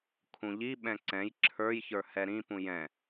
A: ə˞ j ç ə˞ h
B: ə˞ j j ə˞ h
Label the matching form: A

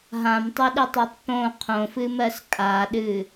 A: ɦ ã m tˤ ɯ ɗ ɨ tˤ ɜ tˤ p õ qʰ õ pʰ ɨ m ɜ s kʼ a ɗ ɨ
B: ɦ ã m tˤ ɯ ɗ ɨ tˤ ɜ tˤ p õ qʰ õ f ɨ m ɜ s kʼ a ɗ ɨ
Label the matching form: B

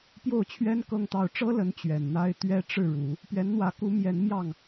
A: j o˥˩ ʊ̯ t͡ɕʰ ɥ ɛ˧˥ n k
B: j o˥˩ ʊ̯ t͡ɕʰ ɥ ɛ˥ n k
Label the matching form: B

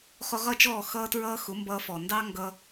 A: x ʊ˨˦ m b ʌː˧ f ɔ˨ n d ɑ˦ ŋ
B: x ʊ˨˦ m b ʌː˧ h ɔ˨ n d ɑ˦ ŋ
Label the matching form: A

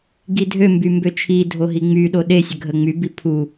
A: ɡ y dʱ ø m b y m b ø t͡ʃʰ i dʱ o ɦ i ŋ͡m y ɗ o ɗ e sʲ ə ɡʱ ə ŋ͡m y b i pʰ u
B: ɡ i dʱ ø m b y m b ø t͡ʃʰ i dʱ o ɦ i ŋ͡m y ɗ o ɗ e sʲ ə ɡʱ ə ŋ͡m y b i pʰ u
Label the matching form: B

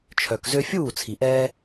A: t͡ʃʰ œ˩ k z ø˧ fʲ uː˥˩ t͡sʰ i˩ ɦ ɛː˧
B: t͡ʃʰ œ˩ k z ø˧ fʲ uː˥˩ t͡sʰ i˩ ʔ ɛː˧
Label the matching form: B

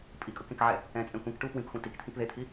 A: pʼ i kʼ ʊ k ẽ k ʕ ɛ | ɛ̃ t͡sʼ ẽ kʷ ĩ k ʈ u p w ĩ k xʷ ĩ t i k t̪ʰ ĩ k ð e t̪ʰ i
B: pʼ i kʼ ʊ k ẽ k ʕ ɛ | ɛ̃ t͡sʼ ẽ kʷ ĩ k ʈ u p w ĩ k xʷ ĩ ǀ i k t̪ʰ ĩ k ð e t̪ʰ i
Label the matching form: A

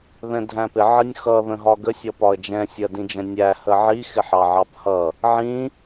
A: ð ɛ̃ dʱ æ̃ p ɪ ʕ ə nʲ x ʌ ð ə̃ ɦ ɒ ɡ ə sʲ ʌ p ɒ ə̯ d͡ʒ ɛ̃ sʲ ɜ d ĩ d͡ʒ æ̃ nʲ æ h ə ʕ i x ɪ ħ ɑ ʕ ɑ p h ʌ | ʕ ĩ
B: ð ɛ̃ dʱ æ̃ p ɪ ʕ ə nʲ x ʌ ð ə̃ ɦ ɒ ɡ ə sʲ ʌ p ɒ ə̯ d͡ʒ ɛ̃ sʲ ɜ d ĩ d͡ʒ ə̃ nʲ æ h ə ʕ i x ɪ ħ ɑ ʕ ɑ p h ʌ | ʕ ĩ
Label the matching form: B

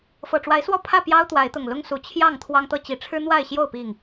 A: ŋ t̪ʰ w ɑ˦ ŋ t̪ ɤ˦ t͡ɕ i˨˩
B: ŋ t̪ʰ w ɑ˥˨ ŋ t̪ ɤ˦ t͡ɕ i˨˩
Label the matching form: A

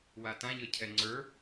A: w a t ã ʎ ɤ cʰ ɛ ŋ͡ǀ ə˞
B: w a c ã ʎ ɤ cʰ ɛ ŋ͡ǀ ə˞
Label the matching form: A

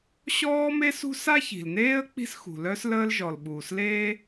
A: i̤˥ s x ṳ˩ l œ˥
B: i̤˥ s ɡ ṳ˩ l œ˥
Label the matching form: A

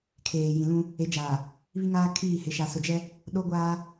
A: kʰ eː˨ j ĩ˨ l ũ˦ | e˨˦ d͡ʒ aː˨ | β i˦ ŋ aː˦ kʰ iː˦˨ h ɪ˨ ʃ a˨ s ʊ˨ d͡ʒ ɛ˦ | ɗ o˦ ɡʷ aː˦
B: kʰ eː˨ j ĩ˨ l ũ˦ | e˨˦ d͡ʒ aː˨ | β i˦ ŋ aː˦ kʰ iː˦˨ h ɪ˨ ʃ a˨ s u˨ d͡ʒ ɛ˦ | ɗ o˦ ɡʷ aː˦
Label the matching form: A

